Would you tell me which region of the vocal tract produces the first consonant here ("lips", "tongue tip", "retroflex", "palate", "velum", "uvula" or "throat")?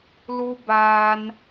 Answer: tongue tip